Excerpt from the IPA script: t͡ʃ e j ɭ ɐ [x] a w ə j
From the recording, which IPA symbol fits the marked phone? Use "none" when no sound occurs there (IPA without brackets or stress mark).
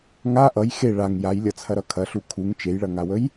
ŋ